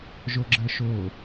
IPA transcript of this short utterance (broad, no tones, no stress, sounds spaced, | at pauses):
ʒ o ɡ͡ǁ ə ʃ o